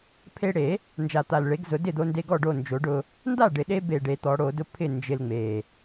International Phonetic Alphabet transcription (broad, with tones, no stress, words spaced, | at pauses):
pʰe˧ɽe˨˩˦ | nd͡ʒa˨˩t̪a˨˩lɭe˨˩˦ɡzʊ˨˩˦ dɪ˥˩d̪o˧nde˧ɡɔ˥˩ ɖo˥˩nd͡ʒo˨˩˦ɖʊ˧ | nda˥˩ɖɪ˨˩ɗe˧be˨˩ ɖe˨˩˦t̪ɔ˨˩˦ɽo˨˩˦ dʊ˥˩ pʰɪ˥˩ nd͡ʒɪ˧lŋ͡me˨˩